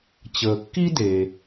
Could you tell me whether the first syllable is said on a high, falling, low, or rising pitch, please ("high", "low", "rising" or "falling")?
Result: low